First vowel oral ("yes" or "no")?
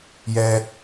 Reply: yes